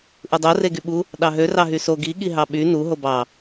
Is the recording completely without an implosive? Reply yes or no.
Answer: no